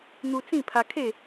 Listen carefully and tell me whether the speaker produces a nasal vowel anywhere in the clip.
yes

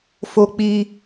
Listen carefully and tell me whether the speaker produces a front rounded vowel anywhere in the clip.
no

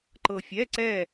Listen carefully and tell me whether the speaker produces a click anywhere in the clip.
yes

